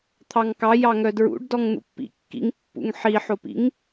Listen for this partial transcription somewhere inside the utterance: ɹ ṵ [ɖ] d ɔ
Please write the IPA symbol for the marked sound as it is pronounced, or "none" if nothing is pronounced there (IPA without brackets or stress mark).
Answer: ɖ